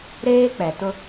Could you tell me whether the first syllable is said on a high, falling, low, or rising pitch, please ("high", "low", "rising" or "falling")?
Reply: high